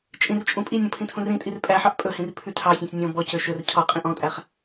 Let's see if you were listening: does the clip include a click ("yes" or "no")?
no